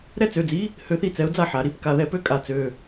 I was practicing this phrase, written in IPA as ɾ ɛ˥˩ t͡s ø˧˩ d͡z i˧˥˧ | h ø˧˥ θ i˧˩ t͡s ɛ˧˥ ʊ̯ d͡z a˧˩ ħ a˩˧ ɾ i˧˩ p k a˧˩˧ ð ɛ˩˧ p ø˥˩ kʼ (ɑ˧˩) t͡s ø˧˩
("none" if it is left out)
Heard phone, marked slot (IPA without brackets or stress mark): a˧˩